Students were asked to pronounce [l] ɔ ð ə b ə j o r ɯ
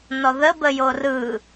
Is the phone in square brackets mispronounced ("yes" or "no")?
yes